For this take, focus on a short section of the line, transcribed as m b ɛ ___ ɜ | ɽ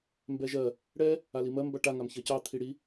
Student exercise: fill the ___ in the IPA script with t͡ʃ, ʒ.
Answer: ʒ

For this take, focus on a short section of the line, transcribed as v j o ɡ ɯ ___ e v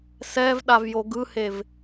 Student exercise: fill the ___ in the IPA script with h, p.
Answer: h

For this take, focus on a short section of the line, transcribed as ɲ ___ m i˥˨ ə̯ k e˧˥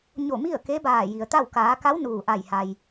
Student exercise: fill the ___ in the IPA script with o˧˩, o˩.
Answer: o˧˩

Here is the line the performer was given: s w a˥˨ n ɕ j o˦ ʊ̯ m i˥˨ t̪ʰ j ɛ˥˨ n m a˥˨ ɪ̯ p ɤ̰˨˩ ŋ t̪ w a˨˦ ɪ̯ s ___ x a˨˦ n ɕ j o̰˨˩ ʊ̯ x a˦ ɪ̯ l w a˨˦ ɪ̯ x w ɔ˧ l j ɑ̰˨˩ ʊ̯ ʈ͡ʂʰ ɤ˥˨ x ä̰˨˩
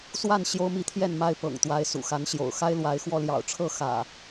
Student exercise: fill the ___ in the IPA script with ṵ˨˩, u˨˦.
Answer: ṵ˨˩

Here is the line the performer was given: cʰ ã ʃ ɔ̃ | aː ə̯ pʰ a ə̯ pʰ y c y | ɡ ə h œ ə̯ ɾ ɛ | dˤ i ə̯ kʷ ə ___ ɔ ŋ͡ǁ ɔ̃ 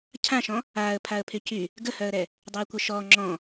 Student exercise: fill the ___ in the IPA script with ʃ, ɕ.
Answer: ʃ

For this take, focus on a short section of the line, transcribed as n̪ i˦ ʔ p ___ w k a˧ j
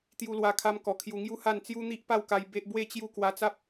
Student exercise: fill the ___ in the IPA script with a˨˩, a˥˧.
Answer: a˥˧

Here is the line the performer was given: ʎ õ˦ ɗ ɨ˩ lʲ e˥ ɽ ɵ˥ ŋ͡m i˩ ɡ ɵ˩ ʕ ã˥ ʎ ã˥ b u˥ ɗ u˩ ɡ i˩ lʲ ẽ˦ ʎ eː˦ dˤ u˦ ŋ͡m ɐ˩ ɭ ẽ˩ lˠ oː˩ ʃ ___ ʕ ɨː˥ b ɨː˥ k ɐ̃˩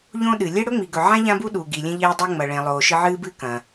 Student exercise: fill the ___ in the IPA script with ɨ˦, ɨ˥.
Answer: ɨ˦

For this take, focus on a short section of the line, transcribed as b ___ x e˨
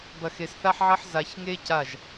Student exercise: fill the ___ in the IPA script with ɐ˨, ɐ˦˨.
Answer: ɐ˨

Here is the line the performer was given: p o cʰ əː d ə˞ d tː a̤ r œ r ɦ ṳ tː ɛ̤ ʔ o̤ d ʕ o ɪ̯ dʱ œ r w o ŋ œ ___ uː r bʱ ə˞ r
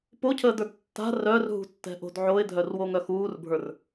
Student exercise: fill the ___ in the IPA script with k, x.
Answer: x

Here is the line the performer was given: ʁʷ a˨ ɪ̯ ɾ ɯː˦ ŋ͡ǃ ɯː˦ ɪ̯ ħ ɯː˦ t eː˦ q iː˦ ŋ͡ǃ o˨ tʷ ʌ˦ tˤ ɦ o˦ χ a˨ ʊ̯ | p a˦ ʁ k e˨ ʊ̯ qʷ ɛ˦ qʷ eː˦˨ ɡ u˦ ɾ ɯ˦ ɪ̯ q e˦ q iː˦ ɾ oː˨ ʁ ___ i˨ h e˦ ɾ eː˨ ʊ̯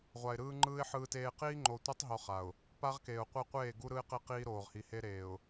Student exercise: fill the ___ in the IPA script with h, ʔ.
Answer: h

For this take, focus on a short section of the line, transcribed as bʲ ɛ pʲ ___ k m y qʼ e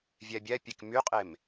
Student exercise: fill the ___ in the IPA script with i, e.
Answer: e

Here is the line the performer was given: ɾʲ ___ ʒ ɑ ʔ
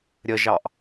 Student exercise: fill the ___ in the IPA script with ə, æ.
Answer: ə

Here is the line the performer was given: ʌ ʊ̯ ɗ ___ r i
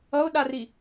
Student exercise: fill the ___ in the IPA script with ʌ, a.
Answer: a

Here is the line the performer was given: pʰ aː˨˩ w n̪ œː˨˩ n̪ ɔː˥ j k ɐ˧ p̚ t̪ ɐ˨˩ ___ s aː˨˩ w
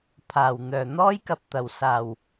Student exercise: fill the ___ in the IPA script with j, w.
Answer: w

